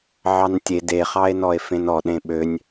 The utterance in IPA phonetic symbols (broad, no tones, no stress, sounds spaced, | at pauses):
ʕ ɑ n tʲ e d e χ ɑ e̯ n ɔ e̯ f ẽ n ɔ ɗ ẽ ɓ ø nʲ